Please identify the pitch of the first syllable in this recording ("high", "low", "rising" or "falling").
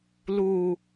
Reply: low